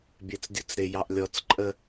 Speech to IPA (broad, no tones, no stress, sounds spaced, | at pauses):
bʲ ɛ t͡s dʲ ʊ t͡s ɾ ɪ j ɑ ʔ lʲ ɔ t͡s ǃʼ ə